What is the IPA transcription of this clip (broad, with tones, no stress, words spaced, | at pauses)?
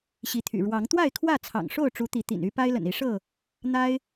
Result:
ɕi˨˦t̪ʰy̰˨˩ ɻwɑ˨˦ŋ t̪wa˥˨ɪ̯kʰwä˥˨t͡sʰɑ̰˨˩ŋʂo˥˨ʊ̯ ʈ͡ʂu˨˦t̪i˨˦t̪ḭ˨˩ny˦ pa˦ɪ̯lə̰˨˩ni˨˦ʂɤ˥˨ | n̪a˦ɪ̯